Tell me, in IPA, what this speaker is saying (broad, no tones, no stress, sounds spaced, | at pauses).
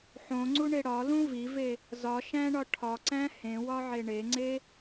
ħ õ ŋ͡ǀ u ɳ e ɽ ɒ l ũ v i v e | z ɒ ʃ æ̃ ɳ ɒ ʈʰ ɒ ǀ æ̃ h ẽ w ɒ ʕ e ɳ e ŋ͡ǀ e